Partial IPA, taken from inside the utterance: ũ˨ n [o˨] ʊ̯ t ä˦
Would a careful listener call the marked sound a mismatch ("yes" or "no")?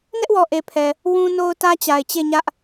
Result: no